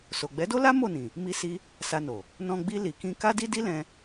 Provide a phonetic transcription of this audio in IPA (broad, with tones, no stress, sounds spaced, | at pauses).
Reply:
s o˨ ɡ͡b ɛ˨˦ d o˦ l a˦ m o˦˨ n ĩ˨ | m i˧ s i˧ | s a˧ n o˨ | n ɔ̃˧ ɡ͡b i˧ l i˨ k ĩ˧ k a˦ d i˦ d i˦ l ɛ̃˧